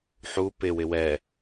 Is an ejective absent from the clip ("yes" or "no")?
yes